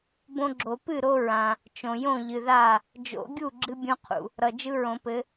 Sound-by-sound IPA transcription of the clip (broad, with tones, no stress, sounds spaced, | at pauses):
b õ˦ ɡ͡ǁ o˨˩˦ p ɨ˥˩ ɾ o˦ ɹ ã˨ | t͡ʃ õ˨ j õ˥˩ ʎ ɨ˨ ð a˥˩ | d͡ʒ o̰˨˩˦ ɡʲ u˥˩ ɡ͡ǁ ɨ˦ bʲ õ˦ qʰ ṵ˨ | ɾ ʌ˨ d͡ʒ ɯ˦ ɹ õ˨˩˦ p ɘ˨˦